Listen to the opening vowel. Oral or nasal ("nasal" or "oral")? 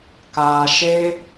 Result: oral